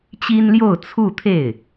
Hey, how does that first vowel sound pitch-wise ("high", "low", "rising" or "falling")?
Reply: high